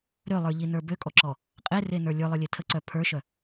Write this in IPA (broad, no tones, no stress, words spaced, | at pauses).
ɾølˠə˞ʎinə˞ bøkʼɔǁɔ | qʼerenə˞ lʲə˞lˠə˞lʲe tʰəǀœ pʰə˞ʃœ